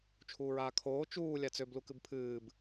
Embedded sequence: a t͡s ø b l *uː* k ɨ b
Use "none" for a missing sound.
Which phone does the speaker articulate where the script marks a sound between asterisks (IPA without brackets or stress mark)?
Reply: u